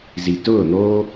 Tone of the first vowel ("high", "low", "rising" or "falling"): low